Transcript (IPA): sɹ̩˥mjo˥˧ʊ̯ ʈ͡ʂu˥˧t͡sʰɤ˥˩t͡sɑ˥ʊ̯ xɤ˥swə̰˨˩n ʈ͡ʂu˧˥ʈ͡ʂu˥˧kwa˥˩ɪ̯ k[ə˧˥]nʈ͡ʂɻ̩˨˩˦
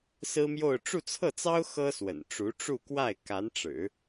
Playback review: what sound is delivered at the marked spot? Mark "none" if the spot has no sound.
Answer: a˧˥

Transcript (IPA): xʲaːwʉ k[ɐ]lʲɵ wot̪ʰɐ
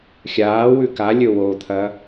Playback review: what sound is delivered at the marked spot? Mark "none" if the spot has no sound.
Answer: a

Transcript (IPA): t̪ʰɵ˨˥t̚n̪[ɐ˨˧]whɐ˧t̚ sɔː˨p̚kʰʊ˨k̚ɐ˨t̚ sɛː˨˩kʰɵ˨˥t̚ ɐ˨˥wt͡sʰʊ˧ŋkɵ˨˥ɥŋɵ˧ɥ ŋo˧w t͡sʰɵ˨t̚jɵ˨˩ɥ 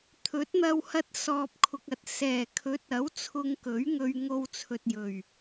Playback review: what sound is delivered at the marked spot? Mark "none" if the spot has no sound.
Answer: ɐ˧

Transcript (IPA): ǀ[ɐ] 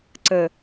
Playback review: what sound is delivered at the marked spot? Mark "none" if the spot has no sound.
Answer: ə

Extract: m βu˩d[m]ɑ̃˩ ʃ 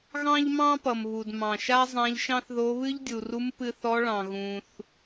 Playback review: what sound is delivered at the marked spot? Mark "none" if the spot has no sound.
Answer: m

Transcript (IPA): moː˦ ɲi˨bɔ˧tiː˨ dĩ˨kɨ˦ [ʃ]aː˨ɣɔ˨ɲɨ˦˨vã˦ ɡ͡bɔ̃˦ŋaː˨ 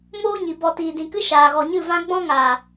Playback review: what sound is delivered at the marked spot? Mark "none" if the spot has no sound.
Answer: ʃ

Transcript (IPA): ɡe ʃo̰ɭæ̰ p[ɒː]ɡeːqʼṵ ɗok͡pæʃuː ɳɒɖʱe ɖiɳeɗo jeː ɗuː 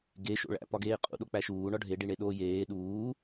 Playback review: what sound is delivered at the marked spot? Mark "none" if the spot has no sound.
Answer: ɒ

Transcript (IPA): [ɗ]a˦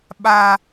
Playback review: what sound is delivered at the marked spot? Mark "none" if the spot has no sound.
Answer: ɓ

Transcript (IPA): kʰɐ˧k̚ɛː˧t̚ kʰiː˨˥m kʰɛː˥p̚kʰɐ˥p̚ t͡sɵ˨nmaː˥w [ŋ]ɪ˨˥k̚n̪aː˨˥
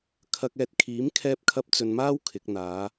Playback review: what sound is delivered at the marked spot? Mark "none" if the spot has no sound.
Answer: kʰ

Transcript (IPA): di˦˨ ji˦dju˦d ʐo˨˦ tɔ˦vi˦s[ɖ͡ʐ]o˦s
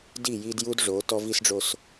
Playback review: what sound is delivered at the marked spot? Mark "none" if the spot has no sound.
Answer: ɖ͡ʐ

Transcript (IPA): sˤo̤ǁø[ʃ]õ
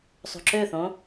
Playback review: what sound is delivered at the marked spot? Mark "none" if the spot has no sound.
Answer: θ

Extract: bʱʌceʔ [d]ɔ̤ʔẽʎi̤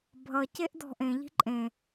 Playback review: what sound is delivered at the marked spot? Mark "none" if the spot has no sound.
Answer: d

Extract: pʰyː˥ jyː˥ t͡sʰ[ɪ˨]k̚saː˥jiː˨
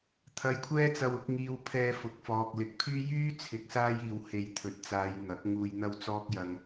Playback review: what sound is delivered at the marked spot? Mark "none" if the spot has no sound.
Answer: ɪ˧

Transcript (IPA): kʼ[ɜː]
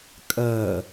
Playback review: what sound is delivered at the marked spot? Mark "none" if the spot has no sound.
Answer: ɜː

